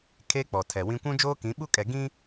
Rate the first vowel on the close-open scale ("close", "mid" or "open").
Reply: mid